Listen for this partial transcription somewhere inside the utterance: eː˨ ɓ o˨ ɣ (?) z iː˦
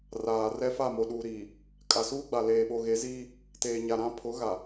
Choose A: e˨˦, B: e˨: A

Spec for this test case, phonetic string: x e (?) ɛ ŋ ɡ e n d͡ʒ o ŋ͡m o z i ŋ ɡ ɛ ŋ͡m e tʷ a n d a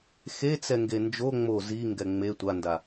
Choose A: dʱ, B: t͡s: B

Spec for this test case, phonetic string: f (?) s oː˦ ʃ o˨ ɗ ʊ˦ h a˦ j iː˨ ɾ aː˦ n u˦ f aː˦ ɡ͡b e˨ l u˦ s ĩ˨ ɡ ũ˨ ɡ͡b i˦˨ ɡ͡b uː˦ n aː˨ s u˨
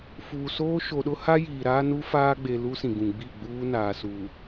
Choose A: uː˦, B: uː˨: B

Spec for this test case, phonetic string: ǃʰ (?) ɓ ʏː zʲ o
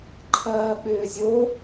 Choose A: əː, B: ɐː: B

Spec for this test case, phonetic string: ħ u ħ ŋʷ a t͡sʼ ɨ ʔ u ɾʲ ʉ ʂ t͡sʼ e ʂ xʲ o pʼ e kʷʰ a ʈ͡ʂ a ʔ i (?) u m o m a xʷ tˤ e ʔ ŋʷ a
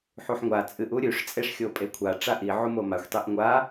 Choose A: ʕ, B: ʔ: A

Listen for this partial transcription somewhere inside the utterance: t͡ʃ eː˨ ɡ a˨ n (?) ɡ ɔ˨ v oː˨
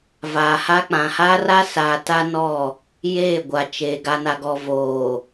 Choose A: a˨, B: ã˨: A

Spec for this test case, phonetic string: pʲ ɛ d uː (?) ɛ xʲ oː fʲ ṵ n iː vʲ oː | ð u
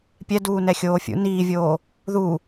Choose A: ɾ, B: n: B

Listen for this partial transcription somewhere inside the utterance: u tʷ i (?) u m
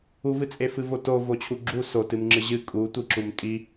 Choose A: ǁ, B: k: A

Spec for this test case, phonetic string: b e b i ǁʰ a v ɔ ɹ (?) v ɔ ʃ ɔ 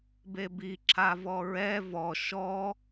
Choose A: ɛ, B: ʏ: A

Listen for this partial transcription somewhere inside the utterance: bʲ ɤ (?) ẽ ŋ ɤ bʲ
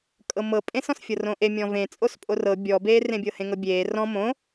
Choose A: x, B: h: B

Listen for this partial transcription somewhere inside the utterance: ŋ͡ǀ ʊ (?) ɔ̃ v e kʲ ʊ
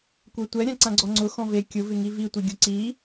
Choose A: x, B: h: A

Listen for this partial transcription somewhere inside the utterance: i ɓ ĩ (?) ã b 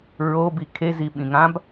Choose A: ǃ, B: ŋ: B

